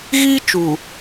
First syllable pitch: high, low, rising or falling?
high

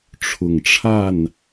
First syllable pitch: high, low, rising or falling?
low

